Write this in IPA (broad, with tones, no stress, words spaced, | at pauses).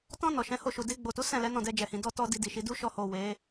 tɔ̃˧ nɔ˨ʃɛ̃˨˦ho˧ʃu˨ de˧ɡ͡bo˨tu˨˦ sɛ̃˦˨lɛ˨˦ nɔ̃˦˨dɛ˧d͡ʒɛ˨hĩ˨ dɔ˧tɔ˧ di˧di˨ʃi˨˦ du˦ʃɔ˧ho˨ we˨˦